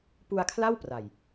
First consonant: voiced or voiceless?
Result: voiceless